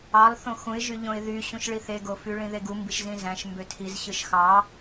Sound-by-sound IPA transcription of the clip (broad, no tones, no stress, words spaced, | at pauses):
ɑlˠ θõxũɪ̯ʒyʎõɪ̯ ðyɕũʃɭi θeɡofy ɭĩðeɡumbiʃ zĩzæ̃ʃ mbøtʰiz ɕɯʃxɑ